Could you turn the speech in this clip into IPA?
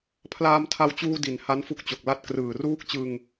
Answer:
pʰlaː˧mtʰa˧wt͡ɕuː˧ di˩˦n ha˦˥nfu˦˥k̚t͡ɕo˨˩k̚ la˦˥t̚krɯː˨˩ ruː˦˥k̚t͡ɕɯ˧ŋ

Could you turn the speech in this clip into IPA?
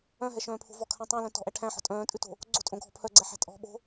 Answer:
œ̃ɦɛʃœ̃ːpʰo̤ vɔkʰɛ̃ tˤœ̃lœ̃ tɔ̤ʔæ ʈʰæ̃ħɔ̤ tʼœ̃ːtʼʉto̤ | ɡ͡ǀo̤tʼõɡʱɔ pʰœɡ͡ǀɛħæ̤ tʼɔ̤ ɓo̤

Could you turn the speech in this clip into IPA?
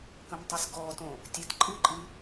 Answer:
kə̃mtˤɨsɡɔtõ | tʲetǃʼɨǃʼɨ

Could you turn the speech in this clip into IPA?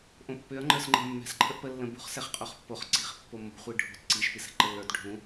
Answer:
ʔõpːʏɐ̯ ŋ͡ǃə˞sŋ͡ǃə̤ mːɛ̤s ǃʰəʔpə lːə̃bṳχ sɛχqʼoχpːoχ ǀi̤χ pːomːo̤ χʷiɖʱo̤t ǀiʃ pisɛ̤ǃəlːə˞t ɖʱũ

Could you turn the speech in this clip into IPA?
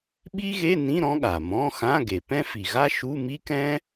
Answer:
ɓi˥ɣe˧˥˧nĩ˧˥˧ ɾɔ̃˥ɠa˩mɔ̃˧˥˧xã˧˥˧ ɡe˩pɛ̃˥fi˩ɣa˥ ʃu˧˥˧mi˥kɛ̃˥

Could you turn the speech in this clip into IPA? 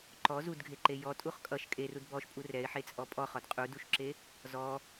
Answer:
ǃɔ zudɡʱeǃe jɔtʼuχ kʼʌʃ kʼerud bɔʃpʼu rɛɪ̯ħet͡sʼɔ pʼɔχɔd qʼuduʃǁe | zɔ

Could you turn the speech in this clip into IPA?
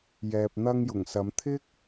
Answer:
jɛː˨p̚n̪ɐ˧ŋjʊ˨˩ŋsɐ˨˧m t̪ʰɪ˥k̚

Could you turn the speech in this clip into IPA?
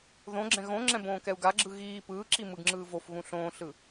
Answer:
ðõɡ͡ǁɛ̃ ɣõŋ͡ǁɛ̃ bõːkɛu̯ɡaɡ͡ǁɯ ɣiː pɯːǁi mɯɡŋ͡ǁɯːvofɣũ ɬõːɬɯ

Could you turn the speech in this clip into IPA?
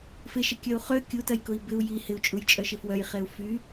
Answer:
fɪʃə kʲɐu̯χø kʲutɐjkʊi̯ bɪu̯ ji hɪu̯t͡ʃʼujt͡ʃʼœʃɪ fwœjχeu̯ fy

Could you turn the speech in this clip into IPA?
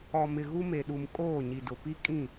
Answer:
ɔ˨mɪ˨ ɣu˦me˨ɗu˨m kʼoː˦˨ɲi˨dʊ˨ pi˦kʼĩ˦˨

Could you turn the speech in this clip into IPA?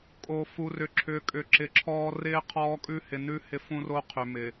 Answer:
kʼo˨ fu˨rʏ˨ǁʰʏː˨ kʼʏ˨ǁɪ˨ǁʰɔː˦ rɪː˦ qʰɔː˦kʼʉ˦hɪ˨ nʉ˦ hɪ˦fũ˦ro˦ qʰʏ˨mɪ˨

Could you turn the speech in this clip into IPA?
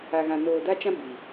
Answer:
a˨ɣã˨ noː˨da˦t͡ʃã˦ bi˨

